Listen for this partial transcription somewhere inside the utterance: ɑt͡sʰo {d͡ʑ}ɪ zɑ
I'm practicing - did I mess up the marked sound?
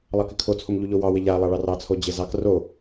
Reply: no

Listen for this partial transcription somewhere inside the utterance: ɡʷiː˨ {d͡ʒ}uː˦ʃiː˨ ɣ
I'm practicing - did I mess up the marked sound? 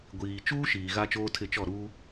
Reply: yes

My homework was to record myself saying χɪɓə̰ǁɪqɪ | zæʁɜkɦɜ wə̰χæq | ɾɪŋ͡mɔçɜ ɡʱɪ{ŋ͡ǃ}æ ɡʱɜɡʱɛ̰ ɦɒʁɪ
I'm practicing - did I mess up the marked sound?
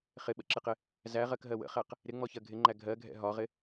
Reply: no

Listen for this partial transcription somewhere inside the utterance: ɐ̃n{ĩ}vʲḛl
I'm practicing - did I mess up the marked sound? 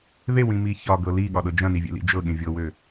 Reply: yes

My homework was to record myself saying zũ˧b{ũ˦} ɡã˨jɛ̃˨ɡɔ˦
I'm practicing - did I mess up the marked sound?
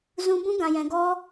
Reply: no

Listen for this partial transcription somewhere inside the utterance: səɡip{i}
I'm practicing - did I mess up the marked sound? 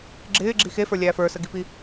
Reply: no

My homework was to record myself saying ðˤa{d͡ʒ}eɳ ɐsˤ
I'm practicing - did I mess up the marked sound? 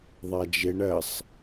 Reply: no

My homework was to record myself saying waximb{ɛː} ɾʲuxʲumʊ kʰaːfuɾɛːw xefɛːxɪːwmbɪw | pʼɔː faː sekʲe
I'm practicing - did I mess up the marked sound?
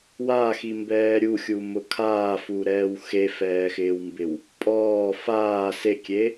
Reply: no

